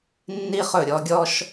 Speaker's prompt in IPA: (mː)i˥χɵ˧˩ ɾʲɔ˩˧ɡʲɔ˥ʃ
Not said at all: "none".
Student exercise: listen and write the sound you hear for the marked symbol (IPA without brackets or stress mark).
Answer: nː